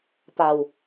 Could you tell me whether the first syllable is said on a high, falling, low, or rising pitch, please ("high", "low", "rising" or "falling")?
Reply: low